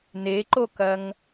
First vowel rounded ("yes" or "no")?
no